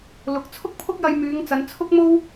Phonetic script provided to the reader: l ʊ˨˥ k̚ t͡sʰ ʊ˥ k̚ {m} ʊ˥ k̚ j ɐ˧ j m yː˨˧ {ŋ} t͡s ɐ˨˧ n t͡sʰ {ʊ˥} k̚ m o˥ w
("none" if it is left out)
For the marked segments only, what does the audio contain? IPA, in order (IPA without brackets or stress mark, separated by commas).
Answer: pʰ, ŋ, ʊ˥